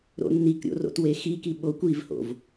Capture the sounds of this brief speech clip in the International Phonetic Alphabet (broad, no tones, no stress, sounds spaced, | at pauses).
ɾ o̰ nː i k ɾʲ o̰ r o̰ t w e x i k i ɓ o kʷ i v h o̰ v